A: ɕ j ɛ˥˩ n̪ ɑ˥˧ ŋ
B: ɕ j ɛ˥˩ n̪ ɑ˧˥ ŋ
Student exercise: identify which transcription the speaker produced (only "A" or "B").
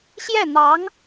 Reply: B